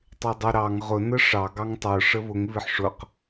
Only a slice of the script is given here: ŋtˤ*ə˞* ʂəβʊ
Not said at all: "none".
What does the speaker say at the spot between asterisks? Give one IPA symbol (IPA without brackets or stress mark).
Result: ə˞